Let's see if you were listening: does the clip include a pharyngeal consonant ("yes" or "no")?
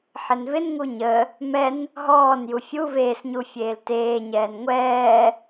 yes